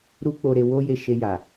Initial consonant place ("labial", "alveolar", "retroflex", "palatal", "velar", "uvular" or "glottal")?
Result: alveolar